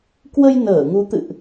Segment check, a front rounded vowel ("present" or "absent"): absent